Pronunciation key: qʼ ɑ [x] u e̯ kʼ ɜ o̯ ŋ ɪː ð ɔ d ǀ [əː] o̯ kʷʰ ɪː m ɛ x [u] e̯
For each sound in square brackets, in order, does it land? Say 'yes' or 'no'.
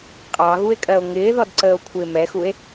no, yes, yes

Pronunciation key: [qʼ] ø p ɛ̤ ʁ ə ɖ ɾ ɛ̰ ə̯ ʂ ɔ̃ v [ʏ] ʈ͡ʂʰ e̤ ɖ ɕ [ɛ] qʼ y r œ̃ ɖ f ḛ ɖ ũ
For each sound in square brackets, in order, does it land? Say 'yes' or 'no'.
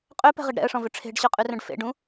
yes, yes, no

